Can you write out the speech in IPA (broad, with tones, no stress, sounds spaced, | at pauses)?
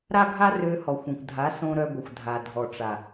ɾ a˦ ɡʱ a˦ r ø˧ h ɔ˨ xʷ õ˨ kʷ dʱ a˨˦ s õ˧ ɾ œ˧ ɡʷ ə˨ xʷ dʱ a˨ dʱ ɔ˨ ʈ͡ʂ a˨